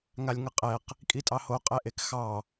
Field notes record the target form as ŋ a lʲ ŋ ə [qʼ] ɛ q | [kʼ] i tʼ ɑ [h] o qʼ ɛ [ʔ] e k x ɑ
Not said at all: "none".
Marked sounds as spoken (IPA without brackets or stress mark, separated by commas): qʼ, kʼ, h, ʔ